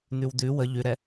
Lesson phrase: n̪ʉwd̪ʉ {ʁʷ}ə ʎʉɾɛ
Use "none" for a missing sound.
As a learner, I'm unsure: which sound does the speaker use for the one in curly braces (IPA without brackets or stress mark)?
w